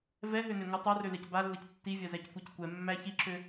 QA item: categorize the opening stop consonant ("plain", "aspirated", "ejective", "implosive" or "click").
plain